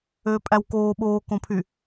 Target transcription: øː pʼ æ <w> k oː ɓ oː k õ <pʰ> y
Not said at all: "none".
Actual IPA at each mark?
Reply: w, pʰ

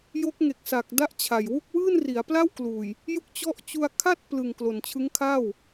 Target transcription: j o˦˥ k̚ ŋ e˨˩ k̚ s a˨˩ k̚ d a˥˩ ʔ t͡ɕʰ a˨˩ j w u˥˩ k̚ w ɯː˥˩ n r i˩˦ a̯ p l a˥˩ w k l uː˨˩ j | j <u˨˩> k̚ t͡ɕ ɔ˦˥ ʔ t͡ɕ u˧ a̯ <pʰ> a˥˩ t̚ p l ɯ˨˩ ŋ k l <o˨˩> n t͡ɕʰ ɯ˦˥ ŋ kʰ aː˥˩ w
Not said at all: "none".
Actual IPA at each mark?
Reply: u˥˩, kʰ, o˨˩

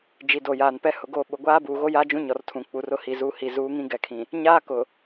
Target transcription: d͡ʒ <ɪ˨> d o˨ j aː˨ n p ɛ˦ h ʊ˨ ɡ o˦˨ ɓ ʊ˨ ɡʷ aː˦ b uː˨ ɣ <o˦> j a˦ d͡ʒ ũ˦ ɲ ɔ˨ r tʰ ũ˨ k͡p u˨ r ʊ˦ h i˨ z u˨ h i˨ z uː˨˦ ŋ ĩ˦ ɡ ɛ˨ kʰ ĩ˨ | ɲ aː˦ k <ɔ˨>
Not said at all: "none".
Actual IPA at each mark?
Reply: i˨, o˦, ʊ˨

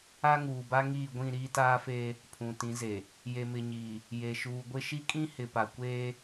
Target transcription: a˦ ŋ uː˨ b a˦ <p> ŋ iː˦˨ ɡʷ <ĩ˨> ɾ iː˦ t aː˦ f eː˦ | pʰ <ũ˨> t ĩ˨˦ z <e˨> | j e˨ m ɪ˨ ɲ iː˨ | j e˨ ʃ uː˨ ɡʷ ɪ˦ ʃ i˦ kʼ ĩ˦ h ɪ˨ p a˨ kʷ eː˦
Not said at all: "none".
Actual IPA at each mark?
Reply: none, ĩ˦˨, ũ˨, e˨

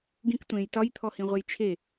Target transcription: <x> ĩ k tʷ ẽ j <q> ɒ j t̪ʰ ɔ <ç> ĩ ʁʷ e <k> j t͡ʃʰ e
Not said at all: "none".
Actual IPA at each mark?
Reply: ɡ, t, h, none

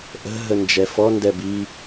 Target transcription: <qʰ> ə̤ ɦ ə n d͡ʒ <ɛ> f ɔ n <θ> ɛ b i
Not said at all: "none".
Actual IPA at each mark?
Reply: ʔ, ɛ, d

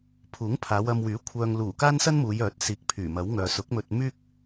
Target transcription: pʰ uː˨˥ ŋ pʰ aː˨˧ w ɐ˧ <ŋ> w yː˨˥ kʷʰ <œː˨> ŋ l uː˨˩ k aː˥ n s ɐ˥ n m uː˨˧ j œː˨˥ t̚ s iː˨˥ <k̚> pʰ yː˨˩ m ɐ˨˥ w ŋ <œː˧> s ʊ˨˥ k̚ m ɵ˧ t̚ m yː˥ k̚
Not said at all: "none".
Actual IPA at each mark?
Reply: m, œː˨, k̚, œː˨

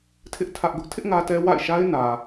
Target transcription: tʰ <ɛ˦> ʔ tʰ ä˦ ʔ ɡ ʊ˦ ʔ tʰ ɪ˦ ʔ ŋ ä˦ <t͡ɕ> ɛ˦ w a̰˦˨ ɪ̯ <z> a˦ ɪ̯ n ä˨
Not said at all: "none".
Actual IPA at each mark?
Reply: ɪ˦, t, ʃ

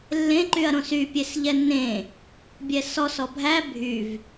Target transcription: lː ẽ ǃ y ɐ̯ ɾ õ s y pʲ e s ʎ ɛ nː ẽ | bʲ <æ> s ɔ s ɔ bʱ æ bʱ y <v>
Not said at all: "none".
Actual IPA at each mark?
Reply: ɛ, v

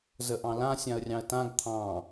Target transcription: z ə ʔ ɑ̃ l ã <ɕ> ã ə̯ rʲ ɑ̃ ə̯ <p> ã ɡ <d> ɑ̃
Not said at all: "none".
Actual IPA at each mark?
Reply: sʲ, t, t̪ʰ

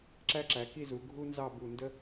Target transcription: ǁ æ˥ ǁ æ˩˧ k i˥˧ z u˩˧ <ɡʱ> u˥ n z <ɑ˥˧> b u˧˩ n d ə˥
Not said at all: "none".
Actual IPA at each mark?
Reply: ɡʱ, ɑ˥˧

